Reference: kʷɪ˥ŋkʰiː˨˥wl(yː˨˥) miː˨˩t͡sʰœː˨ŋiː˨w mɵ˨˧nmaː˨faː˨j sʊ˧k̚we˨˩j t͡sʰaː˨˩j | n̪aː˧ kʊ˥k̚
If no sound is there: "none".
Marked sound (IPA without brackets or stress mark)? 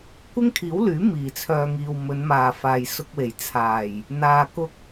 yː˨˥